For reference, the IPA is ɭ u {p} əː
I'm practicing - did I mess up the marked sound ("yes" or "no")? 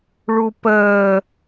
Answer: no